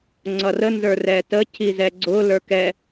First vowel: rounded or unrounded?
unrounded